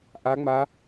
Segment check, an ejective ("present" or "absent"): absent